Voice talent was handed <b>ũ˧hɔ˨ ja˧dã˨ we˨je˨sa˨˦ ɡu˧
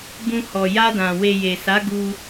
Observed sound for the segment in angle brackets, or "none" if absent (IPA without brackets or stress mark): b